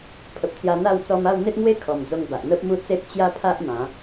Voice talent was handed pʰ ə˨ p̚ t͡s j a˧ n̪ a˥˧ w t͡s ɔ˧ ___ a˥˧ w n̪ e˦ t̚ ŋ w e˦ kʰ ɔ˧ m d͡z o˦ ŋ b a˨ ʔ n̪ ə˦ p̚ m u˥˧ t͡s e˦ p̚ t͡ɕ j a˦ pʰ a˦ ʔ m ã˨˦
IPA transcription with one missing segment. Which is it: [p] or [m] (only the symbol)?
m